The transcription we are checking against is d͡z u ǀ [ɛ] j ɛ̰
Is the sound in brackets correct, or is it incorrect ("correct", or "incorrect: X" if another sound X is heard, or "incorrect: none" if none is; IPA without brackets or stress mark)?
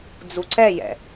correct